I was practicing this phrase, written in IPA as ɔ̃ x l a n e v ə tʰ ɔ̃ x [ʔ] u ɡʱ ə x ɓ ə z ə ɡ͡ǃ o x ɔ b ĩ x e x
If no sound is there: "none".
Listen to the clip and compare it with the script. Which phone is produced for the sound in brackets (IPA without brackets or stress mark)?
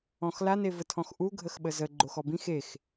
ʔ